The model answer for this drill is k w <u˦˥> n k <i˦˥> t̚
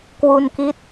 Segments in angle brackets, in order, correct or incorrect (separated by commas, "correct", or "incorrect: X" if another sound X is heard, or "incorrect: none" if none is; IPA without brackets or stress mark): incorrect: u˧, correct